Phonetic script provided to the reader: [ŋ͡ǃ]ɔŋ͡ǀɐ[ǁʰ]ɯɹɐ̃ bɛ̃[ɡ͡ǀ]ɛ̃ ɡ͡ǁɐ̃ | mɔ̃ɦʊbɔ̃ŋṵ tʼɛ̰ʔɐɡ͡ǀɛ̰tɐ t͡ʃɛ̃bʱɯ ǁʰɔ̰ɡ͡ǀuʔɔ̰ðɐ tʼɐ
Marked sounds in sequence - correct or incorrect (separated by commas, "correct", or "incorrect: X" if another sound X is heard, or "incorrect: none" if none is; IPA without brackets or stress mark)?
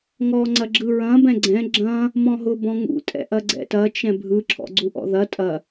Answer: incorrect: ŋ, incorrect: ɡ͡ǁ, correct